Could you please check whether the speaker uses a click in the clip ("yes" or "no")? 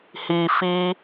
no